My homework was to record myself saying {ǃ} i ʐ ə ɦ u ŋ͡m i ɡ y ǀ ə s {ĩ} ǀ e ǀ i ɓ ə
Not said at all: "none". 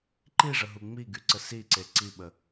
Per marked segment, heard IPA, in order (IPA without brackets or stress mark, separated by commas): ǃ, i